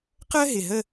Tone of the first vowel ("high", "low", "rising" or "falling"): high